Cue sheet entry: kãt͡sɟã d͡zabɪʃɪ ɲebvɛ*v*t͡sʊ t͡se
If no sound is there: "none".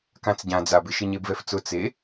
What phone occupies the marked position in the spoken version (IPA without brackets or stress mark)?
f